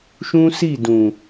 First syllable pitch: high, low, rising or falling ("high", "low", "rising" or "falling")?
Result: high